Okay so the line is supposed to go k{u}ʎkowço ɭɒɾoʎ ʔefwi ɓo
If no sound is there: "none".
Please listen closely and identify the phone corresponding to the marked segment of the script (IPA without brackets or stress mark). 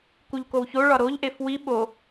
u